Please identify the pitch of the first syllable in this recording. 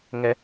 high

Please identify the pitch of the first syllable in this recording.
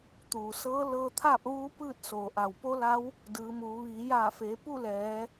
low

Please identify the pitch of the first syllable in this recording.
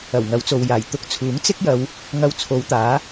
low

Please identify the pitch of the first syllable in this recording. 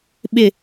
falling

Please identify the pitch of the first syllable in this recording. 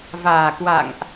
low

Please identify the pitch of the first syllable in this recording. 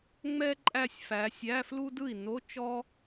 high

